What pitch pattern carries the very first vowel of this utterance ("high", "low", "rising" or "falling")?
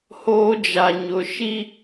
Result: high